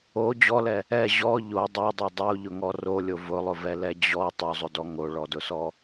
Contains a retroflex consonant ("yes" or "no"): yes